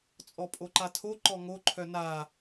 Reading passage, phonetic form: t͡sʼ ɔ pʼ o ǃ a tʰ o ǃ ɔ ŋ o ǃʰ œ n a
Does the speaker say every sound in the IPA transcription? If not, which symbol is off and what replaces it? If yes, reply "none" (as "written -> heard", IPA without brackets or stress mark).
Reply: none